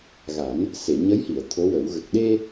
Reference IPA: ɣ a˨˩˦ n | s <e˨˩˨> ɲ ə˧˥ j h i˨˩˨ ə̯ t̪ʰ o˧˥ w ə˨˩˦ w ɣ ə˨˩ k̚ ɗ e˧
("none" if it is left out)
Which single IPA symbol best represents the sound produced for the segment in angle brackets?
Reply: e˨˩˨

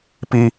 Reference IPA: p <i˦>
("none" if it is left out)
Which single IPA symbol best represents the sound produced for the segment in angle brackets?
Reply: i˦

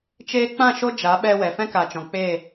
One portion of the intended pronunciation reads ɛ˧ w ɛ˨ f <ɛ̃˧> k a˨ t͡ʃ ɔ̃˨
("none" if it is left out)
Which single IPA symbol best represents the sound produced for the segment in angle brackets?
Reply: ɛ̃˦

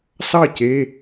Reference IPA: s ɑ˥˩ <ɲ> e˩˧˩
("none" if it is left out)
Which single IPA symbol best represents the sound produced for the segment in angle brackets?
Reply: c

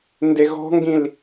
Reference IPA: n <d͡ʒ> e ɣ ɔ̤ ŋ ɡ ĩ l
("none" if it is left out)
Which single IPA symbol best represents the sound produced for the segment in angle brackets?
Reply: d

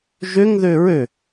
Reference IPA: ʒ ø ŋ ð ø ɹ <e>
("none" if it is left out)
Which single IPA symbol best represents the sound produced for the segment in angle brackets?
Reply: ø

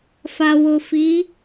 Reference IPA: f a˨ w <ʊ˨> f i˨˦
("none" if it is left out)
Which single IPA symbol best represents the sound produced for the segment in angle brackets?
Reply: ʊ˨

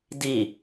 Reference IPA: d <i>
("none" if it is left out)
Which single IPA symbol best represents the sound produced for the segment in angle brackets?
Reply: i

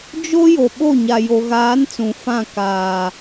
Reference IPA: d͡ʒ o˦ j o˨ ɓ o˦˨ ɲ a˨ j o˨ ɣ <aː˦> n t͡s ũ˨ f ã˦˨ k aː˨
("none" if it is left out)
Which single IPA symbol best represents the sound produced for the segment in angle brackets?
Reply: aː˨˦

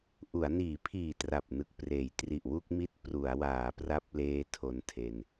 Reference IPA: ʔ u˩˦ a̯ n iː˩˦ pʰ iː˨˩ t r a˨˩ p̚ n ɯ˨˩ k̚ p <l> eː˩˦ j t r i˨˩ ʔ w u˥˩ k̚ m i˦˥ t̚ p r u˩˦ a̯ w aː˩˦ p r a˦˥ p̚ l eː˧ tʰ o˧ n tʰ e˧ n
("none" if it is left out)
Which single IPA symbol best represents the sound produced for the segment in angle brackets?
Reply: r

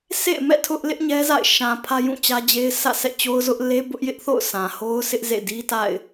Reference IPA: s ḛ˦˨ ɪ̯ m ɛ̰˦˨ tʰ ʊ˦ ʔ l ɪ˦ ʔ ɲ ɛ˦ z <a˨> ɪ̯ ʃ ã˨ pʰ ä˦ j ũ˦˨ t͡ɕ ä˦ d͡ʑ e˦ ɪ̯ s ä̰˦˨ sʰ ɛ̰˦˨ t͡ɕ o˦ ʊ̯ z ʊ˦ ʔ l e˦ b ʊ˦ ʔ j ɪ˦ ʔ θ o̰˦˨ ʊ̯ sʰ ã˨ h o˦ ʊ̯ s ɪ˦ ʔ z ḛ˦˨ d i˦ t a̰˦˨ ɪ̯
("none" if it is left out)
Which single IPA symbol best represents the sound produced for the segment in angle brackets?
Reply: a̰˦˨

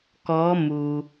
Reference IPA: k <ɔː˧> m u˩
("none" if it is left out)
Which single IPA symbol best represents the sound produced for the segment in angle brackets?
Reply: ɔː˧˥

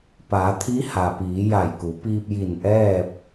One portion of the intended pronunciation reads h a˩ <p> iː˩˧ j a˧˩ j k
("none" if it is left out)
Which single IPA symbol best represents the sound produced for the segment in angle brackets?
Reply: p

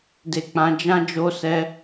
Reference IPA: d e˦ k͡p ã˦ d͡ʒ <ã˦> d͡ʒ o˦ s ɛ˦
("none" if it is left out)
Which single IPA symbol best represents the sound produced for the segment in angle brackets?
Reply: ã˦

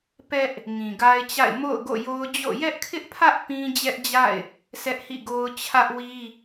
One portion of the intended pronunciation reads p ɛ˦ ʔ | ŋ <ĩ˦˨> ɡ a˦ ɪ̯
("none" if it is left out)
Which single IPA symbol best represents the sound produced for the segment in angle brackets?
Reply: ĩ˨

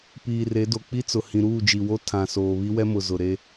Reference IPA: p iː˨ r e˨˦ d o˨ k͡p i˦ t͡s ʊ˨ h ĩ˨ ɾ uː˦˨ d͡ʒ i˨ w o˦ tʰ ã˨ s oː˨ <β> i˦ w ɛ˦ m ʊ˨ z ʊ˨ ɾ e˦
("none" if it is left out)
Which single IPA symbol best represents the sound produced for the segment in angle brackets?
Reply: β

